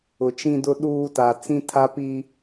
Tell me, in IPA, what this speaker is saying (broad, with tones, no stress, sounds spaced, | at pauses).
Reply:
ʊ˨ t͡ʃ ĩ˦ d ʊ˦ ɗ uː˦ t a˨ t͡s ĩ˦ tʰ a˦ p i˦